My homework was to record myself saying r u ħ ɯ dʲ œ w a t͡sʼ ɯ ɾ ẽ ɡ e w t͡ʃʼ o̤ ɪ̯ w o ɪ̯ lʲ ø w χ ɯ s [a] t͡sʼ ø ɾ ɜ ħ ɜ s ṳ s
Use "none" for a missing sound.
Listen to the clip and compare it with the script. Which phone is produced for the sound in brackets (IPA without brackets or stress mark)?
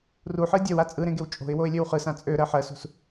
ã